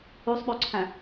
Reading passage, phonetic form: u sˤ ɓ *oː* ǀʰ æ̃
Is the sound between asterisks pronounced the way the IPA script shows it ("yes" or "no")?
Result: no